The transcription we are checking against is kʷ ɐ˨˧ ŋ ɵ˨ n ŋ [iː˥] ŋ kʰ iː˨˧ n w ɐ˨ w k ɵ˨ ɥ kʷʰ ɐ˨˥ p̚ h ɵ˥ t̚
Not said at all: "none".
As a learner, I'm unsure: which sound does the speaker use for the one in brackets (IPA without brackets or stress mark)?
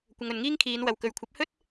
iː˥